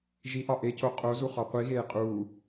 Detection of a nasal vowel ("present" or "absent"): absent